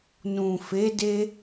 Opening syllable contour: low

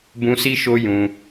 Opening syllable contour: high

